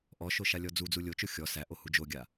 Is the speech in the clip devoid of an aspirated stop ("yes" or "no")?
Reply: yes